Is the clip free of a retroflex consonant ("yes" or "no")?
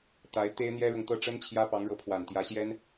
no